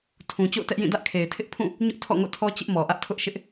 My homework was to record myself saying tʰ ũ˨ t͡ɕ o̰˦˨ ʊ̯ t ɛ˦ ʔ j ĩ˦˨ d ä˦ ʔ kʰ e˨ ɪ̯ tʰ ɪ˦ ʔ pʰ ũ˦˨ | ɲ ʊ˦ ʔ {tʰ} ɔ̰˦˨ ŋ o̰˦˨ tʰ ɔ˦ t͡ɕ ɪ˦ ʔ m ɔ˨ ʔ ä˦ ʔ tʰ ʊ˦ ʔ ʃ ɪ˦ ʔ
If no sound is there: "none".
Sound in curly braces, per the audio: tʰ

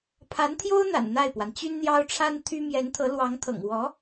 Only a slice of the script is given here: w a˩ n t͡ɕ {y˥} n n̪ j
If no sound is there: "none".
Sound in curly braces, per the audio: y˥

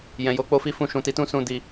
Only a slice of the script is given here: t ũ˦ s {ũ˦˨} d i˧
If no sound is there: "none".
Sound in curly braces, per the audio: ũ˦˨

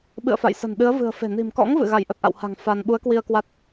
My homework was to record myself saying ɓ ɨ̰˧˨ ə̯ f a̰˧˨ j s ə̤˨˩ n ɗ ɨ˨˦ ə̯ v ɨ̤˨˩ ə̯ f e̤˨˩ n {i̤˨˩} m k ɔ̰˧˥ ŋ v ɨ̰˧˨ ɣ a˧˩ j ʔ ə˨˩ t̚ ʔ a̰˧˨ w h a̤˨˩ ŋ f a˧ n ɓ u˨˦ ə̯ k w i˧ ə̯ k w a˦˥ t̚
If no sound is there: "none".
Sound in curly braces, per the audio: i̤˨˩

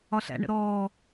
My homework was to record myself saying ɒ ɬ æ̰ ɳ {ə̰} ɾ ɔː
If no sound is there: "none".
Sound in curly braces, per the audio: ə̰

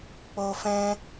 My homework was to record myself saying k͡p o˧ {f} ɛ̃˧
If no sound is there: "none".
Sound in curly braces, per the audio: f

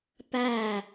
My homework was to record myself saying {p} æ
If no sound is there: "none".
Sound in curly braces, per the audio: p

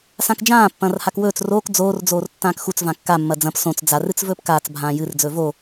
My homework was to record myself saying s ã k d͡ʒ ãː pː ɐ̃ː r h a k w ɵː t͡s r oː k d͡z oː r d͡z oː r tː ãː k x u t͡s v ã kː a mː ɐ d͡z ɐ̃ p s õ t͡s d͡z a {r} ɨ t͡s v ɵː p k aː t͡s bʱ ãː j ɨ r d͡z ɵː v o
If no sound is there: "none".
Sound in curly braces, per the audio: r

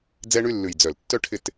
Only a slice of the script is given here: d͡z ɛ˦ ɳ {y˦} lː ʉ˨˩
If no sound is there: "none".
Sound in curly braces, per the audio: y˦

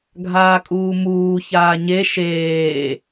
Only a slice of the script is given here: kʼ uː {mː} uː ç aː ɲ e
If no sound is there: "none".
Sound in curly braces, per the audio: m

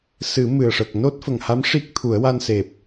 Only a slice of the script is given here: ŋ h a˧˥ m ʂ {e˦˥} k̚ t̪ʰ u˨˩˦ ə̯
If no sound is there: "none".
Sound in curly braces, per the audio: i˦˥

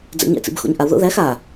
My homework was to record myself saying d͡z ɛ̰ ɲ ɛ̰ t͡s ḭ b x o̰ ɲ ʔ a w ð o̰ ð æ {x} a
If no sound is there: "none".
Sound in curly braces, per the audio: x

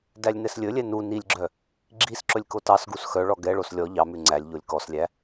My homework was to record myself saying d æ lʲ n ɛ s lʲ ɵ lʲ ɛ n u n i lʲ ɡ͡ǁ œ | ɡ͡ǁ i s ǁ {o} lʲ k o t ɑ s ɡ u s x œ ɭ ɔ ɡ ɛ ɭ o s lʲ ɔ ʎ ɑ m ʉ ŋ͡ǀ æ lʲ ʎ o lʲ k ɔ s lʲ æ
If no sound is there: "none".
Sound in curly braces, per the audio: ɵ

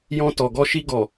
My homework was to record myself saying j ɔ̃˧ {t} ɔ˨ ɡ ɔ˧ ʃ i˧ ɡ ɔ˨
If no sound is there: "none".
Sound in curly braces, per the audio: t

